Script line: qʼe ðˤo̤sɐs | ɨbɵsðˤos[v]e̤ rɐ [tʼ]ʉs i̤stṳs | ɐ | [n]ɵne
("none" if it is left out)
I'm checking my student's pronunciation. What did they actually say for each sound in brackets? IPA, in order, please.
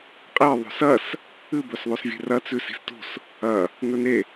vʲ, t͡s, n

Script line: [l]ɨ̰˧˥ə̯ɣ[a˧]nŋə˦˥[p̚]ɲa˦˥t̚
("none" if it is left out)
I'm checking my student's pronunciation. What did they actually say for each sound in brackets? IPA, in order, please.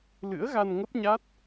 l, a˧, p̚

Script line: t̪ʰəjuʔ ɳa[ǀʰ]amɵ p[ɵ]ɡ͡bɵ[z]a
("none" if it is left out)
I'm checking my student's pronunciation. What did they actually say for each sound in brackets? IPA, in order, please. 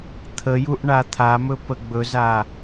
t̪ʰ, ə, z

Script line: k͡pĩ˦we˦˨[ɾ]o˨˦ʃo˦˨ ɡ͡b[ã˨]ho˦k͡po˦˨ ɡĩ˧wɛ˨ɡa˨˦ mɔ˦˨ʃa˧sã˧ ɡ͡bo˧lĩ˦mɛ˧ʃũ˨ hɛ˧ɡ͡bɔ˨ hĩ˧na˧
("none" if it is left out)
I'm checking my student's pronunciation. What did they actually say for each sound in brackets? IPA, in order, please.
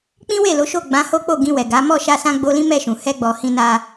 l, ã˨˦

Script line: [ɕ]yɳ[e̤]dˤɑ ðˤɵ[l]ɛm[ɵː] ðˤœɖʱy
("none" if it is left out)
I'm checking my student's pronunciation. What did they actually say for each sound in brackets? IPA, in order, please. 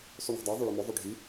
sˤ, e̤, ɭ, ɵ

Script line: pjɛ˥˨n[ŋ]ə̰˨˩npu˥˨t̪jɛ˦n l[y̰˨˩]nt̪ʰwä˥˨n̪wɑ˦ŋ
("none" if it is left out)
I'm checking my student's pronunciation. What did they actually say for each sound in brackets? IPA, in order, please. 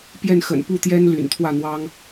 x, y̰˨˩

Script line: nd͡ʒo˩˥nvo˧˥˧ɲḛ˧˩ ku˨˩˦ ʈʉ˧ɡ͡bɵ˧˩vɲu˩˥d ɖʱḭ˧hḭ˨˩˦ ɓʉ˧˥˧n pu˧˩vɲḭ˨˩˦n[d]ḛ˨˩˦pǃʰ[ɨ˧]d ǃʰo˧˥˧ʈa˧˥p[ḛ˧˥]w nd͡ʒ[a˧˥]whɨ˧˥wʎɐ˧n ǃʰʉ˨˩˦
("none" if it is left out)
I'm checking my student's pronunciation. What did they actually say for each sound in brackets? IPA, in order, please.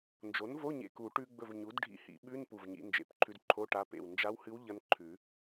d͡ʒ, ʉ˧, ḛ˧˩, a˧˥

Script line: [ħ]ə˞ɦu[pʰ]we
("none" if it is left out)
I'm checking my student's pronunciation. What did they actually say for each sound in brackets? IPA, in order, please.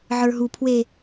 ʕ, pʰ

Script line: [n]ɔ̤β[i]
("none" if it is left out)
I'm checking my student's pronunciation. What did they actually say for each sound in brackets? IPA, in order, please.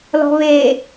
l, e

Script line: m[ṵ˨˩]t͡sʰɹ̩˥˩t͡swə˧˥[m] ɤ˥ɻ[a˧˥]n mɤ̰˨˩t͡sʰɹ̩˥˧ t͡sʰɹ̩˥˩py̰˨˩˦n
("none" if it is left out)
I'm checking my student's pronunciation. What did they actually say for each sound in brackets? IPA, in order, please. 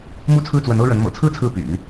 u˥˧, n, ə˧˥

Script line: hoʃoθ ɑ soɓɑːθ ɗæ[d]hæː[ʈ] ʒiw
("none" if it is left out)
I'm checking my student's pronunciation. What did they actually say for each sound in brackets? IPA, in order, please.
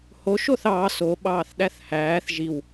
θ, θ

